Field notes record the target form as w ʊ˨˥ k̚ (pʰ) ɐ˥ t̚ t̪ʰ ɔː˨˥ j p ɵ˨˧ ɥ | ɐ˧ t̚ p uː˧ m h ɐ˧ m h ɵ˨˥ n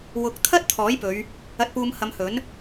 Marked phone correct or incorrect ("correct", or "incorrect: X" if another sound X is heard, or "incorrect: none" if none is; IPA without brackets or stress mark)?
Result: incorrect: t̪ʰ